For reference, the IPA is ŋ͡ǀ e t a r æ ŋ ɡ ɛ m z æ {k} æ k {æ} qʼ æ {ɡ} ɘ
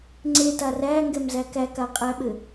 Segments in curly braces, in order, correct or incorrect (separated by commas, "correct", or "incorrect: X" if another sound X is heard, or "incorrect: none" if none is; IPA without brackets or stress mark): correct, incorrect: a, incorrect: ɓ